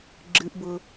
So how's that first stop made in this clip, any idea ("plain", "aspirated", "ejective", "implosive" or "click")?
click